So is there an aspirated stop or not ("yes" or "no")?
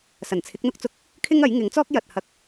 yes